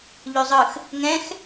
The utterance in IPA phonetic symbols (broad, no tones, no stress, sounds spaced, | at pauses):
ʎ ʉ zˤ ɯ x | ŋ ɛ̃ x